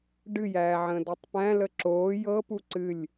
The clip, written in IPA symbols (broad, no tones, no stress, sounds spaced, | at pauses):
ɖ ɨ j æː ʕ ə̃ː d ɤ tˤ p æ̃ l ə ǁ oː j ɤ p u ǀ ɨ lʲ